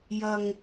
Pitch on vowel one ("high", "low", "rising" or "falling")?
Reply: low